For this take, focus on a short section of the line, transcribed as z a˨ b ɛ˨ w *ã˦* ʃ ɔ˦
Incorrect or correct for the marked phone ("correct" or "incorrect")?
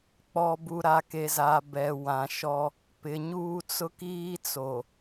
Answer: incorrect